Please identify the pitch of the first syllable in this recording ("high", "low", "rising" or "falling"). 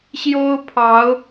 high